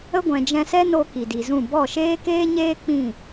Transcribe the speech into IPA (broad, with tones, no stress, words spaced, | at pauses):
ə˦ ɡʷɛ̃˧d͡ʒɛ̃˦ sɛ˦ no˦ki˨di˨zũ˦˨ bɔ˦˨ʃeː˦keː˦ɲeː˦ k͡pĩ˦˨